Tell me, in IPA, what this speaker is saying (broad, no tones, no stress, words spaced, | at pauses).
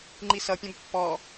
ŋ͡ǃisʌpʲɐ̃b pːɔ